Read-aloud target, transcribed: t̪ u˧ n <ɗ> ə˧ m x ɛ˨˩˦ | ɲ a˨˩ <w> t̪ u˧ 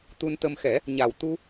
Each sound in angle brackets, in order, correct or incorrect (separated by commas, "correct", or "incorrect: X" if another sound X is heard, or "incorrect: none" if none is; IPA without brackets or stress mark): incorrect: t̪, correct